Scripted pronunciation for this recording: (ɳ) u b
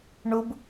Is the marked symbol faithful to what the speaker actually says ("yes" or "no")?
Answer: yes